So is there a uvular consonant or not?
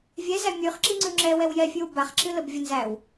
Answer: yes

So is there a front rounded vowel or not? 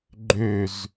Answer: yes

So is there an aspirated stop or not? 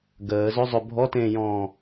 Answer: no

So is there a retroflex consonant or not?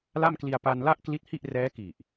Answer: no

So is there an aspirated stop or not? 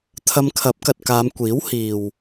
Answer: yes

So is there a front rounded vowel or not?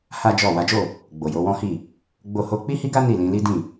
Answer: no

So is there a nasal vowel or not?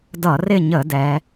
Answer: no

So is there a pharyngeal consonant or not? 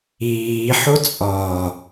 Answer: yes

